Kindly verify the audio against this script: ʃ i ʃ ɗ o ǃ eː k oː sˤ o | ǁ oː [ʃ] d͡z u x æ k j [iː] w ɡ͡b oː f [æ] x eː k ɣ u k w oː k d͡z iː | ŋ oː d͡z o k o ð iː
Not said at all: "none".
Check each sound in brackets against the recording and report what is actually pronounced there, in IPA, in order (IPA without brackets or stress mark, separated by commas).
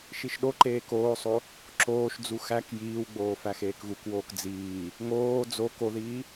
ʃ, iː, æ